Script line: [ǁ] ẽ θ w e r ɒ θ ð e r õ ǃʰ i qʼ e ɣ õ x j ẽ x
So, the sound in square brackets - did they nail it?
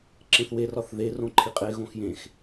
yes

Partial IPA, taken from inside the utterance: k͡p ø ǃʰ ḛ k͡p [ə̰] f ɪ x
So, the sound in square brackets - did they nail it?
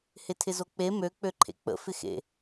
yes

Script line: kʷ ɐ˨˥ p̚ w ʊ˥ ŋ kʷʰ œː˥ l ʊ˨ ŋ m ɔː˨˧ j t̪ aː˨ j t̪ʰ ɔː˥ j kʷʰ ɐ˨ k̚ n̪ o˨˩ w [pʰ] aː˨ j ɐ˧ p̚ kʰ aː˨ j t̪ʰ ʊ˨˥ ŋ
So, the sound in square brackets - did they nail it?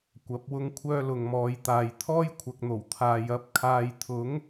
no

